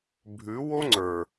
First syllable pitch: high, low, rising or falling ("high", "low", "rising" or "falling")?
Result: rising